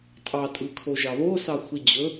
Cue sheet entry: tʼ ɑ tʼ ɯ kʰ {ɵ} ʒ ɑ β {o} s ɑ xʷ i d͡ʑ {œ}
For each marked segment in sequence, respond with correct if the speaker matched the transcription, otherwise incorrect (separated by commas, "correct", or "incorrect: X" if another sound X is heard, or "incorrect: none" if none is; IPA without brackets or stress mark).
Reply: incorrect: o, correct, incorrect: ɵ